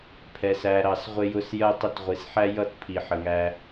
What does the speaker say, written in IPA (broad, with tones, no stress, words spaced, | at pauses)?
pʰɛ˨sæ˨ ɾɑ˨sʁʷɪ˦jʊ˦s jɜ˦tˤɪ˦t ʁʷi˨sħæ˦jʌ˦˨t pʰi˨ħə˨ŋæ˦